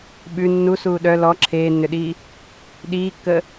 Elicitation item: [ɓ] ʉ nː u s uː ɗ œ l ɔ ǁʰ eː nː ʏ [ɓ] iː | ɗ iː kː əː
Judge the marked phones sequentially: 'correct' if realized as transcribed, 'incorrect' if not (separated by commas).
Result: correct, incorrect